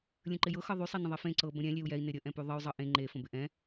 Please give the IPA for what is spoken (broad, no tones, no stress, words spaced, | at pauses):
lʲə̃ǃɪjɤ xɤðˤy sˤenə̃ðˤɛfẽ ǀɤ bə̃ɾʲɛ̃ lʲeu̯jɛi̯ nɪɾʲə ʔɛ̃pyðˤəy̯ zˤɤʔẽ ŋ͡ǃe fə̃bɪʔɛ̃